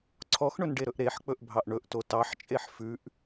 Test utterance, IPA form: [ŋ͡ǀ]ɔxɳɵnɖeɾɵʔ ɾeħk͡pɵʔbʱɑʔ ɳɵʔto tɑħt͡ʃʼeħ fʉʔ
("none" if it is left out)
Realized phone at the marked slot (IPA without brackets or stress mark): ǀʰ